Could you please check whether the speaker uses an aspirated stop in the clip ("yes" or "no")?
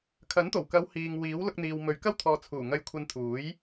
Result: yes